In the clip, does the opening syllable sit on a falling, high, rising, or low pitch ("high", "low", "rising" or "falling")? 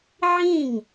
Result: falling